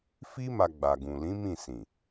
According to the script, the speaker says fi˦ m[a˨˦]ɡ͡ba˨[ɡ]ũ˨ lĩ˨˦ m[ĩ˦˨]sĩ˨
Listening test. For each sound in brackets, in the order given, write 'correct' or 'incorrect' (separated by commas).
incorrect, correct, correct